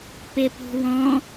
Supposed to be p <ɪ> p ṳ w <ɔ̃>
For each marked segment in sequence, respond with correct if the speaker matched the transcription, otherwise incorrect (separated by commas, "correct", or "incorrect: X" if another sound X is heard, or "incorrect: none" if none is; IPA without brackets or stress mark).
correct, correct